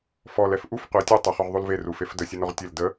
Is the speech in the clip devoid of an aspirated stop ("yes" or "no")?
yes